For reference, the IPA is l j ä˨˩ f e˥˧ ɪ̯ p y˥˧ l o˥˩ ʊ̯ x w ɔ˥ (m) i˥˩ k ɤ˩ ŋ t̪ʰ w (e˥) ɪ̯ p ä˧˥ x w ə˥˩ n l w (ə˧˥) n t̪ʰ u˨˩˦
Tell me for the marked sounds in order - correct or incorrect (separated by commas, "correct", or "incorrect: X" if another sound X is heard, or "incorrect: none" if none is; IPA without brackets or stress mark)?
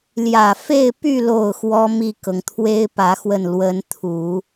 correct, correct, correct